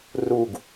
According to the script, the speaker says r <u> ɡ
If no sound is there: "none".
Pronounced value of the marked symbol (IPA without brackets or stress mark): u